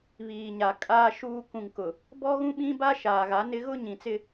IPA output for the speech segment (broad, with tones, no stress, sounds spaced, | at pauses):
β iː˨ ɲ a˨ kʼ aː˦ ʃ uː˦ k ũ˨ ŋ k ʊ˨ | b ɔ˦ ɣ ũ˦ ɓ ĩ˦ b a˦ ʃ aː˨ ɣ a˨˦ n ɪ˦ ɣ ʊ˦ ɲ ĩ˨ t͡s ɪ˦